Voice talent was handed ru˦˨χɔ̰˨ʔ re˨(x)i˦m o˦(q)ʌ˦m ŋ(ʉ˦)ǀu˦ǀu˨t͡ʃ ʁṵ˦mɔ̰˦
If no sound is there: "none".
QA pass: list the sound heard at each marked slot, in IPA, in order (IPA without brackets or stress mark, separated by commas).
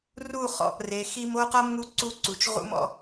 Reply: x, q, u˦